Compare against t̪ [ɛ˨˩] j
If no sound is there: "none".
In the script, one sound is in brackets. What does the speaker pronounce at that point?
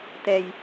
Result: ɛ˧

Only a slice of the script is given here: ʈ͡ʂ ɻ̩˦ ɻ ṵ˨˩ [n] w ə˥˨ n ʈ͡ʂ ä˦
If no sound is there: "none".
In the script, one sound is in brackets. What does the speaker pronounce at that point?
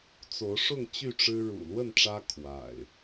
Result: l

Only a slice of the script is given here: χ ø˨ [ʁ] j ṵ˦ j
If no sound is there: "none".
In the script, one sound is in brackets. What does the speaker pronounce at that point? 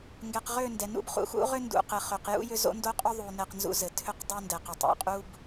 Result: q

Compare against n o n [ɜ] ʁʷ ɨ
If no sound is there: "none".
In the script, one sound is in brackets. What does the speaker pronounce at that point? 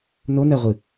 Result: ɜ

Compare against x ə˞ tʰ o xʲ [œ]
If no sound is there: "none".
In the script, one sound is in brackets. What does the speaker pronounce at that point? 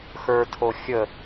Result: ə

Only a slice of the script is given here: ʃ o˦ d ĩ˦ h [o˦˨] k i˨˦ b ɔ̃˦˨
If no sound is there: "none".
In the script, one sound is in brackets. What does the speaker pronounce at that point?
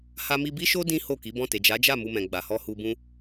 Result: o˦˨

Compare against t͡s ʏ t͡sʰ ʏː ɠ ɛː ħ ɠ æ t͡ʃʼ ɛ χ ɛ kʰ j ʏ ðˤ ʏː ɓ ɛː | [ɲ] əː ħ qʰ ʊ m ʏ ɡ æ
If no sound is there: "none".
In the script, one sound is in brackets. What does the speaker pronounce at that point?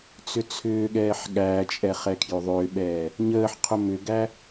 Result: ɲ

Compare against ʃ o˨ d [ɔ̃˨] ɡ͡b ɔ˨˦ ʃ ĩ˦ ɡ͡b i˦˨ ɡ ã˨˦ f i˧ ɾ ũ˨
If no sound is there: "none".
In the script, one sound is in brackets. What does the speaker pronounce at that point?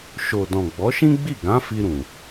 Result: ɔ̃˨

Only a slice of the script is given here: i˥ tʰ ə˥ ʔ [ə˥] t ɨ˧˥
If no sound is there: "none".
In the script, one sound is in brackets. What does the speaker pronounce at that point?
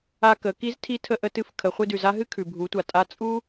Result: ə˧˥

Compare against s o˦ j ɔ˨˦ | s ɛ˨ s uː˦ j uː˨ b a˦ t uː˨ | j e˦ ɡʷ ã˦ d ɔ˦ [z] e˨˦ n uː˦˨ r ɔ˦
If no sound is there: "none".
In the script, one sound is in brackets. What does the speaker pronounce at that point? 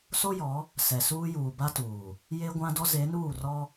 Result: z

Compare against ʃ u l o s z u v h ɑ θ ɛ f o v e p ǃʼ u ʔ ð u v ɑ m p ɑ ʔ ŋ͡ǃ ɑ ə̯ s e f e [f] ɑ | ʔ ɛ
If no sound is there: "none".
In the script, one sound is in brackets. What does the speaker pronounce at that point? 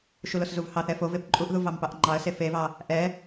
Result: v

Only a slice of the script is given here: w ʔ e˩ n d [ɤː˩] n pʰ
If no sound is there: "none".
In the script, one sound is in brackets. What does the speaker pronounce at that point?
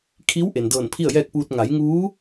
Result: ɤː˧˩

